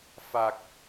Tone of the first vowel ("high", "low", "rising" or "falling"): low